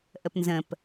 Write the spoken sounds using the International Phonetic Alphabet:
ʔ ə p n z ə̃ p

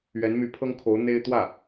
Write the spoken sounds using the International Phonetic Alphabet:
ɥ ɛ˧˥ n m y˧˥ pʰ ɤ˥ ŋ kʰ o˧˥ ʊ̯ n̪ e˥ ɪ̯ t̪ w ä˥˩

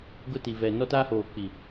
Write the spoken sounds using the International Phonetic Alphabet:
ɡ ʊ˦ t i˨ v ɛ˨ n ɔ˦ t aː˦ h oː˨ k͡p i˨

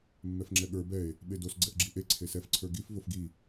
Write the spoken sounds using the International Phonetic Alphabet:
mː ɛ f ŋ͡ǁ ɛ ɠ ə˞ b ɛ e̯ | ɓ e d o s ɡ͡ǀ ɛ ʔ ɡ͡ǁ i ʔ e ǀʰ e s ɛ f ǀʰ ə˞ ɡ i f v o f ɡ i

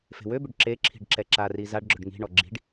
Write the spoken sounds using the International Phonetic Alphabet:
f e̤ w ø b ʏ ɖ ǁ e ǁʰ i̤ ɖ ǁ ɛ ǁ a r i z a ɖ ɡ͡ǁ ɵ ɖ ŋ i̤ ɳ ɔ ɡ͡ǁ i̤ ɖ

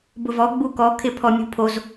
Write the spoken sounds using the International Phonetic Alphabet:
b ʊ v ɔ ɡ͡b u k ɔ kʰ ɪ pʰ ɔ mʲ ṳ pʰ o z

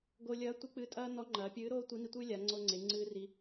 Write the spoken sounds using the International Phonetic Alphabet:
ɡ o˧ lʲ ɐː˧˥ tʷ ɨ˧˥ k͡p ɨ˧˥ tʼ ɐː˥ n ɔ˧˥ ŋ͡ǃ ɐː˩˧ pʲ ɨː˧˥ ɾ oː˥ tʷ i˧˥ n i˧ tʷ ɨ˥ lʲ a˩˧ ŋ͡ǀ o˧ ŋ͡ǀ e˩˧ ŋ͡ǀ ɨː˧ r i˧

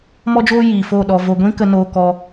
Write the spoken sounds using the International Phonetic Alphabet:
m ɔ˦ d͡ʒ oː˦ j iː˨ f o˦˨ ɗ ɔ˧ v o˧ ɡʷ ĩ˦ k ə˧ n oː˧ k ɔ˧

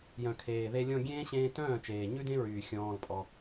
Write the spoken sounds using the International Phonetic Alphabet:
j œ̃˨ kʰ eː˨ ð e˧ lʲ ɔ̃˧ ɡʲ ẽː˦ ɕ ẽː˧ t œ̃ː˦˨ t͡ʃ eː˨ ɲ ʉ˦ d ẽ˦ ɹ yː˨ xʲ ɔ̃ː˧ l pʼ ɔ˧

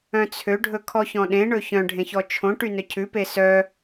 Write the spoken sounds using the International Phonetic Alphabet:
œ̃ t͡sʰ ø ɖʱ ɵ kʰ ɔ ç ɔ̃ ɗ ẽ ɳ ɵ ç œ̃ ɖʱ ẽ ç ɔ t͡ʃʰ õ ʈ y n œ cʰ ʉ p e s œ

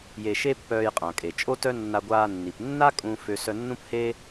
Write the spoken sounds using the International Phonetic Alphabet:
j e˧ ʃ e˥ pː œː˧ j qʼ ã˩ kʼ e˩ t͡ʃʼ o˥ t œ˥ nː a˧ ɡʷ aː˧ nː i˩ p nː a˥ kʼ ũ˧ f ø˧ s œ˧ nː ũ˥ p h eː˥

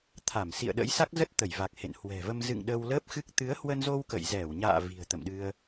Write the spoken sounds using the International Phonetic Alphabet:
t̪ʰ a˧˩ m s ḭ˧˨ ə̯ ɗ ə̰˧˥ j s a˦˥ k̚ z ə˦˥ t̚ t̪ ə˧˩ j v a˨˩ k̚ h ḛ˧˨ n h w ɛ̤˨˩ v ə˧ m z ɨ̰˧˨ ŋ ɗ ə˧ w l əː˦˥ p̚ x ɨ˦˥ k̚ t̪ ɨ˨˦ ə̯ h w ə˧ n z o˧ w k ə̰˧˨ j z ɛ˧˩ w ɲ a̰ː˧˨ v i̤˨˩ ə̯ t̪ ə̰˧˨ m ɗ ɨ˧ ə̯

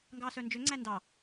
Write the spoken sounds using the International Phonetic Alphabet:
ŋ ɡ ɑː s œ n d͡ʒ ø ŋ͡ǀ æ n d ɑ

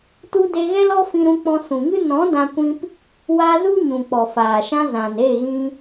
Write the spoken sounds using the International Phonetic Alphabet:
t u˧ d e˧ ɣ ɛ˦ l ɔ˦ f ĩ˧ ɾ ũ˧ k͡p ɔ̃˧ s ũ˨ ŋ ɨ˦ n ɔ̃˨˦ d ã˧ kʷ ĩ˧ p | w a˧ z u˦ ɲ ũ˨ k͡p ɔ˨ f aː˨ ʃ ã˧ z ã˨ n e˦˨ ɣ ĩ˧

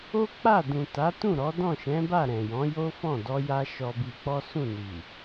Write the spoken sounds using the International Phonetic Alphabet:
o˦ k͡p a˦˨ d ũ˨ t a˨˦ t ũ˦˨ ɾ ɔ˨˦ d ɔ̃˦˨ ʃ ɛ̃˨˦ b a˦˨ ɾ ɛ̃˨ j ɔ̃˨˦ j o˦ f ɔ̃˦˨ d ɔ˧ j a˧ ʃ ɔ˧ b i˧ k͡p ɔ˦ s ũ˦˨ n i˨

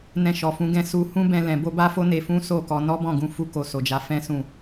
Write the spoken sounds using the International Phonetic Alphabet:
n ɛ̃˧ ʃ ɔ˨ f ũ˨˦ ɡ ɛ̃˧ s u˧ h ũ˦ b ɛ̃˧ l ɛ̃˨ b o˧ b a˦ f o˦ n e˧ f ũ˦ s o˦˨ k ɔ˧ n ɔ˦ b ɔ̃˦˨ ɡ ũ˧ f u˧ k o˧ s o˨ d͡ʒ a˨˦ f ɛ̃˦ s ũ˦˨

